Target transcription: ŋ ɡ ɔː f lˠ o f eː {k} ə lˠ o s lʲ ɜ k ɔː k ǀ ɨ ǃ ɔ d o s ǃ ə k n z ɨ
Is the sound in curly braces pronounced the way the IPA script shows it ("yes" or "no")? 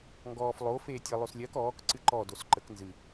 no